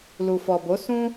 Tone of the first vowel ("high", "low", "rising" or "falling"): low